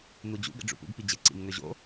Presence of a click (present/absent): present